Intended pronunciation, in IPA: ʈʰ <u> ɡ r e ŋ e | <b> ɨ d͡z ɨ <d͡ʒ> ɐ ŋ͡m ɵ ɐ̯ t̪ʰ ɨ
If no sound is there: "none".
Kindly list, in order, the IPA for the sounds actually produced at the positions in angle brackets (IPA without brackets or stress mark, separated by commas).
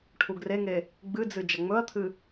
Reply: u, ɡ͡b, d͡ʒ